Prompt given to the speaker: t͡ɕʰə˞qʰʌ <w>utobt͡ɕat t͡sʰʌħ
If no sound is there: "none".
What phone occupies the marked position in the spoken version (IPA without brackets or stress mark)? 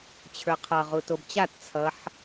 ʁ